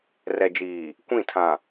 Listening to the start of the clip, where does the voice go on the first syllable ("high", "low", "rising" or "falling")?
low